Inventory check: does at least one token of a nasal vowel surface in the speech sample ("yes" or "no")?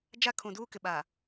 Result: yes